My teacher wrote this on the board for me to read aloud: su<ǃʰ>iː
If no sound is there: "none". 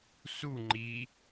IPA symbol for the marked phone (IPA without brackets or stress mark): ŋ͡ǃ